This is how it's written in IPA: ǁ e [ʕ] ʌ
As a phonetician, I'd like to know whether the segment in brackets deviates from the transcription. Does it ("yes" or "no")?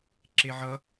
no